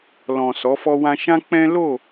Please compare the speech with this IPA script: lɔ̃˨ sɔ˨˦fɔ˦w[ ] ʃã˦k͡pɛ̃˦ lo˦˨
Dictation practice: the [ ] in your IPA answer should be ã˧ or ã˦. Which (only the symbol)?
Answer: ã˦